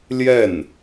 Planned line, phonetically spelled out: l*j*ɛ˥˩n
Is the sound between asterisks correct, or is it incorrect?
correct